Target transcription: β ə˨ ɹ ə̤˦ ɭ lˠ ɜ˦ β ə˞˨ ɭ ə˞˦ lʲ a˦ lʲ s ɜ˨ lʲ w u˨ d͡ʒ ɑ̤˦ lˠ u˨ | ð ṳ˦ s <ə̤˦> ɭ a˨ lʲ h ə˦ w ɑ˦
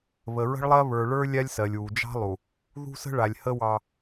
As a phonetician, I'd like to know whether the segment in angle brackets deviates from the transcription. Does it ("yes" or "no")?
no